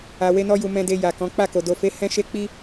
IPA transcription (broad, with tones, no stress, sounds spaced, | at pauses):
a˧ w e˦ n ɔ˦ j u˧ m ɛ̃˨ d e˨ j a˨ k ɔ̃˨˦ k͡p a˦˨ k o˨ d o˨ f e˨˦ h ɛ̃˦ ʃ e˦ k͡p i˦